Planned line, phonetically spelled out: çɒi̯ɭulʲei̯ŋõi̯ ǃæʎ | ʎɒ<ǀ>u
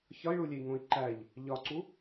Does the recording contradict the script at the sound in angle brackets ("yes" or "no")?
no